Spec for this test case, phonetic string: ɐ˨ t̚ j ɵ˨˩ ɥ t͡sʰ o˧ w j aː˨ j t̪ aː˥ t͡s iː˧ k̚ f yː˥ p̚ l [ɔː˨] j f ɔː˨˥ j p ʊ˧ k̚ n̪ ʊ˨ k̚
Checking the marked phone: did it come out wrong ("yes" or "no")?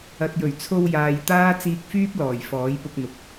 yes